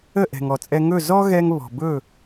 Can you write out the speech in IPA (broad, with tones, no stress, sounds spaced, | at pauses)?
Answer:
ə˥˩ ʔ ɛ̤˩ ŋ ɔ˩ t͡sʼ ɛ˧ ŋ ɵ˥˩ z ɔ˥ ɣ ɛ˥ ŋ β ɔ̤˩ b ɵ˥˩